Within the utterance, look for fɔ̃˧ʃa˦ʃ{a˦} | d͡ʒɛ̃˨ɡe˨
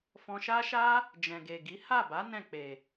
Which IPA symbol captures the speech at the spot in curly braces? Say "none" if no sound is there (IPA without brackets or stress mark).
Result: a˦